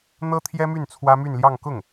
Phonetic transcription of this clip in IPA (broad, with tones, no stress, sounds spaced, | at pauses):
n̪ ɤ˥ t̪ʰ j ɛ˥ m y˥˩ n t͡sʰ w ä˥ m y˥˧ n l j ɑ˥˧ ŋ k ʊ˥˩ ŋ